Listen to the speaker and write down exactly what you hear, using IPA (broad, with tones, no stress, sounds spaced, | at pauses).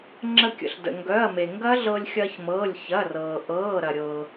ŋ͡ǁ ə˧ kʲ ə̰˩ ɬ d ə̰˩ ŋ ɡ œ˩˧˩ ɐ̯ m e˩ ŋ ɡ ɐ˦˥ ɮ ɤ˧ lʲ xʲ ɐː˧ ç m ɤː˩˧˩ lʲ ç ɐ˩˧˩ r ɤː˩ ʔ ɤː˩˧˩ ɾ ɐ˩ ɾʲ ɤ˩